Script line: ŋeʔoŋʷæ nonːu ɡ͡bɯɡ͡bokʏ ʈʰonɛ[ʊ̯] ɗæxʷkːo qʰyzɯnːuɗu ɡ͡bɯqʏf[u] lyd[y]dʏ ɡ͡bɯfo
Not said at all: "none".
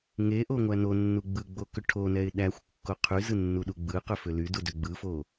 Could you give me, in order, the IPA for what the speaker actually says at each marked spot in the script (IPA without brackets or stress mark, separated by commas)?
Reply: ɪ̯, ʏ, u